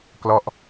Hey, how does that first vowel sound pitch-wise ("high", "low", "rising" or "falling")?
falling